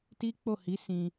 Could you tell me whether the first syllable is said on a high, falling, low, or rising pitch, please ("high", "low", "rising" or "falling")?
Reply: high